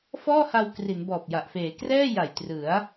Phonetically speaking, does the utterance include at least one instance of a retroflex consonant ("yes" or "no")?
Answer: no